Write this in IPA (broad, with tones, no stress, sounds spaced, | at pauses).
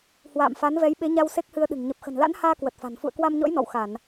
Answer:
h w a̰ː˧˨ m f a˨˦ n v ɛ˨˦ j ɓ e˨˦ ɲ a˧ w s e˦˥ k̚ h ɨ˧ ə̯ ɗ ɨ̤˨˩ ŋ ɲ ə˨˩ p̚ x ə̤˨˩ n l a̰˧˥ n h aː˧ k w ə˨˩ t̚ f a̤˨˩ n f ṵ˧˨ ə̯ k w a˧ m ɲ ɔ̰˧˥ j n ɔ̰˧˨ w x a˧˩˨ n